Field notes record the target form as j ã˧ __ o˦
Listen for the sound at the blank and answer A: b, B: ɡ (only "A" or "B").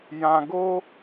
B